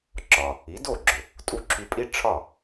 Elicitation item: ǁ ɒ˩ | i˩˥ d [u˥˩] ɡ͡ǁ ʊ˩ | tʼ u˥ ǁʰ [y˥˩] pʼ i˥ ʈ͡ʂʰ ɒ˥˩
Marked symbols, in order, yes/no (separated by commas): no, no